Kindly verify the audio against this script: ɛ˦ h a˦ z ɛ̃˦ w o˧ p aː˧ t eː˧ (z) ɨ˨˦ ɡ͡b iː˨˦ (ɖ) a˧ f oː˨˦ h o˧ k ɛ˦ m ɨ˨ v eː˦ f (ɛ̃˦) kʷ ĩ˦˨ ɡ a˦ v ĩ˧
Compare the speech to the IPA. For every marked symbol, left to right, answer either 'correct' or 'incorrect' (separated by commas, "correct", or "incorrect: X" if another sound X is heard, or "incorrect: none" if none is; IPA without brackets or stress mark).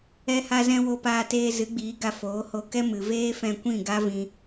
correct, incorrect: ɡ, incorrect: ɛ̃˧